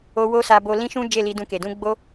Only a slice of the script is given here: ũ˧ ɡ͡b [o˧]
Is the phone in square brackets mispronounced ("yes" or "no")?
yes